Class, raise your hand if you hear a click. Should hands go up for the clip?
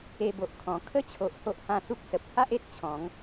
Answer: no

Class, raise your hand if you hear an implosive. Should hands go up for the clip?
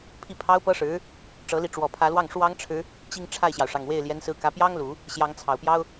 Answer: no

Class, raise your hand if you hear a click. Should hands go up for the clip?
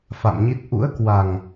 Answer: no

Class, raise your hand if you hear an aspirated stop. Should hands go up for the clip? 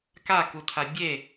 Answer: yes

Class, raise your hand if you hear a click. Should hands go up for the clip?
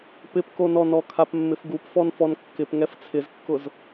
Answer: no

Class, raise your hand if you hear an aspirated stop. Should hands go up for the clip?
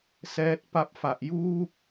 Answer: no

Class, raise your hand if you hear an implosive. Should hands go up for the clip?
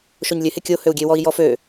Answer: no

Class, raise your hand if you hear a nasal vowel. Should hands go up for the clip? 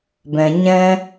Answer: yes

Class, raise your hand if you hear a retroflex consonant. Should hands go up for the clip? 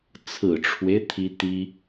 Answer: yes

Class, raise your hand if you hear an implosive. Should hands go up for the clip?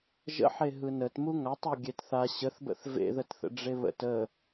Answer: no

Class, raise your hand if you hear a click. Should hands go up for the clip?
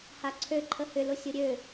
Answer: yes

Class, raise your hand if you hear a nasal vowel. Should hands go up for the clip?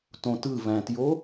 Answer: yes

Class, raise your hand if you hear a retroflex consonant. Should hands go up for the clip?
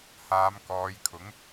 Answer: no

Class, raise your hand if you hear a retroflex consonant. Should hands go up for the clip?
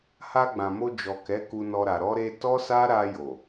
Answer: no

